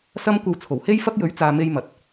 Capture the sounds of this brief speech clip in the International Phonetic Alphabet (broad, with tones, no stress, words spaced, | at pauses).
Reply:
sɐ˥mkʷɐ˧w t͡sʰo˨˩whe˥jfɐ˥k̚ jɵ˨˥ɥt͡saː˨ me˧jmɐ˨t̚